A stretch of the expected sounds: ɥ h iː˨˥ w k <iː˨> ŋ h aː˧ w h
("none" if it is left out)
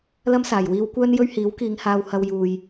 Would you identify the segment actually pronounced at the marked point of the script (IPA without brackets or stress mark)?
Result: iː˨˧